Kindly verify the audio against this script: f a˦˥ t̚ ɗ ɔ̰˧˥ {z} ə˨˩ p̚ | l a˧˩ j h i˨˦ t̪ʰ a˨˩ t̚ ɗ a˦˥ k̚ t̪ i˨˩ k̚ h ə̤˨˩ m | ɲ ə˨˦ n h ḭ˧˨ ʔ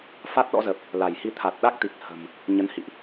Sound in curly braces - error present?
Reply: no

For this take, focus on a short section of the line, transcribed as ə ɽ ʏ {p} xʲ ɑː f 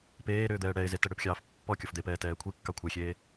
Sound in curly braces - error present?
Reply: no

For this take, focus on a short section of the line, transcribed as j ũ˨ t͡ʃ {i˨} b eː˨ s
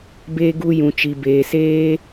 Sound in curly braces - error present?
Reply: no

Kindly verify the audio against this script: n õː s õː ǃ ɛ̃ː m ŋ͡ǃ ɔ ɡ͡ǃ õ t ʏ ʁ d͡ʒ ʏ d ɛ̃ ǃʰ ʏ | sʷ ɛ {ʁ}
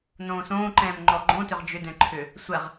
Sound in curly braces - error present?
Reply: no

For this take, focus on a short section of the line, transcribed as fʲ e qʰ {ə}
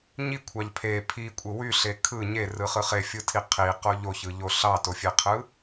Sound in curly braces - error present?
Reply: yes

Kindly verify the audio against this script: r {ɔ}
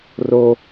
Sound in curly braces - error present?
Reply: yes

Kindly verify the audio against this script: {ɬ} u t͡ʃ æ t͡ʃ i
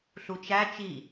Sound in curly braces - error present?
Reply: no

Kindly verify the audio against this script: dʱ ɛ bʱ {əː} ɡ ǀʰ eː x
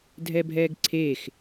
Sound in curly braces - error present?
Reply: yes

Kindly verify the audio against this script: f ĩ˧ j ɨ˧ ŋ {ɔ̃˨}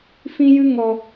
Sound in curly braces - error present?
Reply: yes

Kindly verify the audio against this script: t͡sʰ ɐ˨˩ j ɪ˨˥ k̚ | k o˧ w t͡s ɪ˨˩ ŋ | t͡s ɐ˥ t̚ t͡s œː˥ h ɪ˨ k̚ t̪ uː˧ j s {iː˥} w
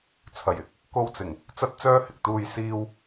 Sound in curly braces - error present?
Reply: yes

